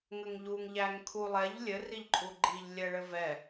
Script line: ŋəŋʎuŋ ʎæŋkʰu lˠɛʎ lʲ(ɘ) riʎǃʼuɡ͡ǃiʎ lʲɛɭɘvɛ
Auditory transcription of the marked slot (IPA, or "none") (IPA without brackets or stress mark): ɘ